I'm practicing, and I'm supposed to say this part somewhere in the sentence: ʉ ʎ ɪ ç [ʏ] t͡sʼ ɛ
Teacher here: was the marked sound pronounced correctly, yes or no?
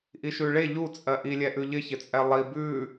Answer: no